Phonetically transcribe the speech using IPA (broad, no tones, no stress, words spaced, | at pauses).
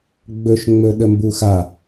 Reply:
ɡ͡bɵʃ ŋ͡mɵɗəmbuxa